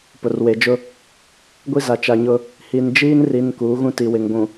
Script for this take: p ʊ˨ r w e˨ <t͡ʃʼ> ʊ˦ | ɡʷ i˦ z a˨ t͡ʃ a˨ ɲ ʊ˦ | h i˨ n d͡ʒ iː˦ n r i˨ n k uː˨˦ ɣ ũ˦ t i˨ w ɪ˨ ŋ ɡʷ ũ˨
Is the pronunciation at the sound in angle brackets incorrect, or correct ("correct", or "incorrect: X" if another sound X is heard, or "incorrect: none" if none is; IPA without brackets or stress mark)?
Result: incorrect: d͡ʒ